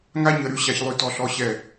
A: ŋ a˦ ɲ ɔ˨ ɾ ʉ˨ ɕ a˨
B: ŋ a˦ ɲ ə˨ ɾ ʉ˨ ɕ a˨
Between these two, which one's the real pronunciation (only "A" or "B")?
B